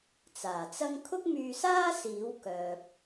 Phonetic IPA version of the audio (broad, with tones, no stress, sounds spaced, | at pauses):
t͡s aː˨˩ t͡s ɐ˥ ŋ kʰ ʊ˥ k̚ m yː˧ s aː˥ s iː˨˥ w k œː˨ p̚